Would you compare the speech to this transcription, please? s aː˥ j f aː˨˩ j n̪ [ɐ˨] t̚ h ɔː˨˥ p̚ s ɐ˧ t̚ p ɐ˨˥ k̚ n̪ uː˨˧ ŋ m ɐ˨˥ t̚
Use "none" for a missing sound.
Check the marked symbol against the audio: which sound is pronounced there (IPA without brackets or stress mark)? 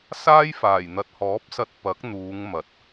ɐ˨